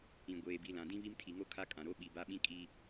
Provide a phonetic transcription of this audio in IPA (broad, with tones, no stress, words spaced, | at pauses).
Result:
ĩ˨ ɡʷeː˨bi˨ lã˨dĩ˦βi˦m tʰi˨ŋo˦ kʰa˦kʼã˨ɾo˦ ɓi˨ba˦ɓĩ˦ kʼi˦